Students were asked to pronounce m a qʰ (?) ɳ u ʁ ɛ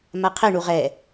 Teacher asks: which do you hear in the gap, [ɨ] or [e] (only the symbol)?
e